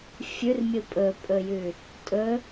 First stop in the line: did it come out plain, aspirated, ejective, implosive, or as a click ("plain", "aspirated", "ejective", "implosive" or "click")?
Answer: ejective